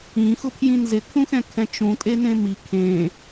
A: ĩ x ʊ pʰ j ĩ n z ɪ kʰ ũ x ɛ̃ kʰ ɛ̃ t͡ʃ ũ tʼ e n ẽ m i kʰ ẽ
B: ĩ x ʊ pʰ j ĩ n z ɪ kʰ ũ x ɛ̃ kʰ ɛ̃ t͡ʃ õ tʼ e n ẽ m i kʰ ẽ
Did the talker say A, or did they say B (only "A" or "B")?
A